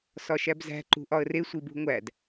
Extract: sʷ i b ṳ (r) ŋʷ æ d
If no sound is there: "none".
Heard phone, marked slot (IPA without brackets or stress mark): none